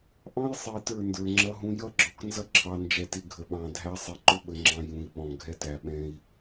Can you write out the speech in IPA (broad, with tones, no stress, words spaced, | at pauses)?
ʔɑ̃˦jsˤi˨ tə˞˦˨ndə˞˨ŋ͡ǁʌ˦ɦũ˦ jʌ˦ɡ͡ǁɔ˨k nzʌ˦ǁʰɑ˨nd͡ʒɛ˨tɪ˨ ɡʱə˨ɓɑ̃˨ dʱæ˦ sˤi˨ǃʊ˦ɓə˨ŋ͡ǁɑ̃˨ jũ˨i̯ɓɔ̃˨ ɡʱɛ˦tæ˨ɓɛ̃˦i̯